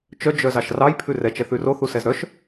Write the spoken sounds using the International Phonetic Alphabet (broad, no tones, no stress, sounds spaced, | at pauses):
t͡ʃ œ d͡ʒ œ z ɑ ʃ r ɑ j pʰ ʉ r ɛ t͡ʃ ɛ θ ʉ r o θ u s ɛ z ɾ œ ʃ